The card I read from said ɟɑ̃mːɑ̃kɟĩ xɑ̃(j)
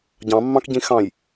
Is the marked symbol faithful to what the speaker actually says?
yes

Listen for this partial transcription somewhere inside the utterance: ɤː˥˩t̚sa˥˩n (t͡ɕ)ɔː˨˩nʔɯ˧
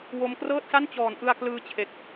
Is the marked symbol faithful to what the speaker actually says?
yes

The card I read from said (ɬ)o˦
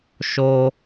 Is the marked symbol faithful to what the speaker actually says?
no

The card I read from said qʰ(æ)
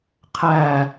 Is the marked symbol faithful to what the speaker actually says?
yes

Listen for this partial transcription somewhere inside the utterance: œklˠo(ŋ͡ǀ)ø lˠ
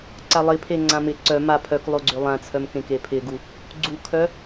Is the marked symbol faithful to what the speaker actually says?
no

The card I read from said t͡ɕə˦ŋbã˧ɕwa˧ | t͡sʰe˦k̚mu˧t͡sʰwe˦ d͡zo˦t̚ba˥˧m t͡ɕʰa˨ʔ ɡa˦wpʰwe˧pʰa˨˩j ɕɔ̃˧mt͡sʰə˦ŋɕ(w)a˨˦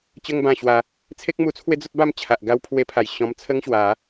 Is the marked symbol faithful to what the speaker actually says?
yes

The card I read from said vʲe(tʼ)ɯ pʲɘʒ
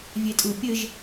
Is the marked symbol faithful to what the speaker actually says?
yes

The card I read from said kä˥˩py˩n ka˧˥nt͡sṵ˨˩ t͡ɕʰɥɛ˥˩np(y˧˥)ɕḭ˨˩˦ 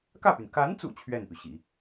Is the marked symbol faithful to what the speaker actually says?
no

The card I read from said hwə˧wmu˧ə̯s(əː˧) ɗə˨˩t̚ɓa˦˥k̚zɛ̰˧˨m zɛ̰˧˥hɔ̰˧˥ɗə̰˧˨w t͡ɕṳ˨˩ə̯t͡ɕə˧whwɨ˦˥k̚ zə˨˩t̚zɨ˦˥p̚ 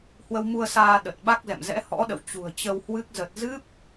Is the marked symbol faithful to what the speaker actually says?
no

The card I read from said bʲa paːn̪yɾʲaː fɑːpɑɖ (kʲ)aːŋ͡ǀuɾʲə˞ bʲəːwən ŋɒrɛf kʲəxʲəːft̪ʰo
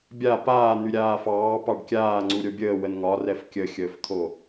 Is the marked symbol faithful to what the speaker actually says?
yes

